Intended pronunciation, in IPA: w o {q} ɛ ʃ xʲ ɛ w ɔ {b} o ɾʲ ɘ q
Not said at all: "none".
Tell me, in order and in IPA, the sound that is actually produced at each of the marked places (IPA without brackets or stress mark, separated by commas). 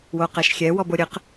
q, b